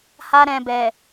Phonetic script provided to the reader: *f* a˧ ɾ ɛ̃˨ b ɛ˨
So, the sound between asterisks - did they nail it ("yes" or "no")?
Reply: no